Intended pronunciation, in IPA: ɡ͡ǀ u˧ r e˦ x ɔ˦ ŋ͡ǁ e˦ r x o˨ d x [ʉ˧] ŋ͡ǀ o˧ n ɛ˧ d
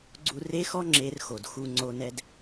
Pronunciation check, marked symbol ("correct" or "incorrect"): incorrect